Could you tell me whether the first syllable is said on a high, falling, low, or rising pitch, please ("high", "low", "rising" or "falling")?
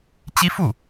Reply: high